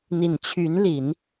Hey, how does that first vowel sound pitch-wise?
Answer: low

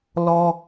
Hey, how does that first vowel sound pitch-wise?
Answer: high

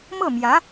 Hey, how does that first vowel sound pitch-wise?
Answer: falling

